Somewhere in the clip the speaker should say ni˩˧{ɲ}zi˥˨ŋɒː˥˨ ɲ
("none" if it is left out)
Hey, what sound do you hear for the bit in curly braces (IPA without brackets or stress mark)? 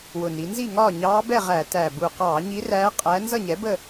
n